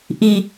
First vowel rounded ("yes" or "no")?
no